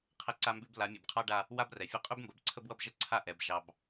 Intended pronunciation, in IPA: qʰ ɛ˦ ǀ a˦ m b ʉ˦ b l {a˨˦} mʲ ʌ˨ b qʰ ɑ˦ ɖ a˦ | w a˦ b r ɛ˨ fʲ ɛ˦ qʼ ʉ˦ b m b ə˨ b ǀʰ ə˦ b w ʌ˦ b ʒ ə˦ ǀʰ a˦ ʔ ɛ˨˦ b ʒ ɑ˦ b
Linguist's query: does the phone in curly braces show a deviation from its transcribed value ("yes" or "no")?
no